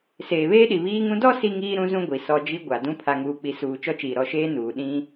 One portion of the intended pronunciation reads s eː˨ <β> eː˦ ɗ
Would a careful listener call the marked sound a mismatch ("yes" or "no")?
no